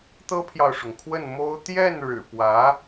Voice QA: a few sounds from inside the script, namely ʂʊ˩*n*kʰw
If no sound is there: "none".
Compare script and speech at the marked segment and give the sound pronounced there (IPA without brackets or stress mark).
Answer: ŋ